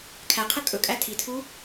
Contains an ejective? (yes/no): yes